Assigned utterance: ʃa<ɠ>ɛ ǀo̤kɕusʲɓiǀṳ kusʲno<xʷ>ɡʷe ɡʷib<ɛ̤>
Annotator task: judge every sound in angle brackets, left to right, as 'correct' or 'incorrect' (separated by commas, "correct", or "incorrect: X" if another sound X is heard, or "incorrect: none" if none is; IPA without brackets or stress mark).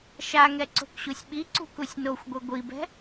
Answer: incorrect: ŋ, correct, correct